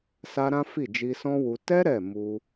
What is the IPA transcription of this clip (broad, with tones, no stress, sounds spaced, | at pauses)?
s a˦ ɾ ã˦ f i˦˨ d͡ʒ i˧ s ɔ̃˦ w u˧ t ɛ˦ ɾ ɛ˦˨ m u˧